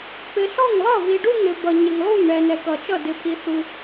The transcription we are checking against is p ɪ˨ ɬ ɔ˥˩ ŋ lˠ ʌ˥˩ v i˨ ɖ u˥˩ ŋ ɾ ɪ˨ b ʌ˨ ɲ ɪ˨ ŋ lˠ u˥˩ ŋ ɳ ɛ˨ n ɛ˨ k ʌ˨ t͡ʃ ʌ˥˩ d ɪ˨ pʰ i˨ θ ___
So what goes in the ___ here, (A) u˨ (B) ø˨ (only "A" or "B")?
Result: A